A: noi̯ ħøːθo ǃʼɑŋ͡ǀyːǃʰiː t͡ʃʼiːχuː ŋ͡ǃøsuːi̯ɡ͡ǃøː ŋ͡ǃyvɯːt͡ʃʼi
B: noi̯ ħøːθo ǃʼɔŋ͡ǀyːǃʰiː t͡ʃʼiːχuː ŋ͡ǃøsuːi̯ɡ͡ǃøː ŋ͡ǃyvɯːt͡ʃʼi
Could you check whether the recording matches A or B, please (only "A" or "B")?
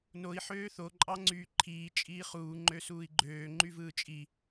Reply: A